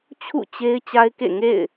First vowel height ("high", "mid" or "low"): high